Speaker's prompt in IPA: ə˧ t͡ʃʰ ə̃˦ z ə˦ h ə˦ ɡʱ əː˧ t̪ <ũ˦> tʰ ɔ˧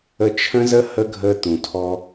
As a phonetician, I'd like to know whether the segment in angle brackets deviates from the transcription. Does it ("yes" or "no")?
yes